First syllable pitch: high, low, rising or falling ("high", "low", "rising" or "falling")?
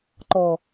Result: low